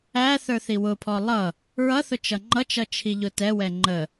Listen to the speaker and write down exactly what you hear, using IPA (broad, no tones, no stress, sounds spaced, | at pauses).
æ θ ə˞ θ i w ʊ pʰ ɔ lˠ ʌ | ɹ ʌ θ ʊ t͡ʃ ʌ ŋ͡ǃ ʌ t͡ʃ ʌ t͡ʃʰ i ʎ ʊ t ɛ w ɛ ŋ͡ǃ ə